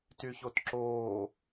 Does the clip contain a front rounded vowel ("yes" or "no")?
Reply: yes